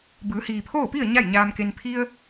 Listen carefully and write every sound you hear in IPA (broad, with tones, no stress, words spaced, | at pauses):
bɯː˩˧hiː˩pʰoː˥˨pi˥˨ə̯ ɲa˥˨jɲaː˧mke˧n pʰi˧ə̯